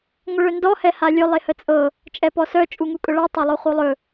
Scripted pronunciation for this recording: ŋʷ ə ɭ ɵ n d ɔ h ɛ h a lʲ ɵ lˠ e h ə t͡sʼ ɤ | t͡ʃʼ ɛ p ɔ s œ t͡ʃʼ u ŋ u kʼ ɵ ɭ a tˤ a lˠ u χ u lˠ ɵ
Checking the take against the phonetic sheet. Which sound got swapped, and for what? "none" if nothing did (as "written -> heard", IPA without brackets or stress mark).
none